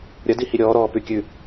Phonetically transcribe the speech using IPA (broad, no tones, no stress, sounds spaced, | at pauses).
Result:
ɾʲ ɐ d i h i ɾʲ ɔː ɾ ɔː p ʉ kʲ ʉ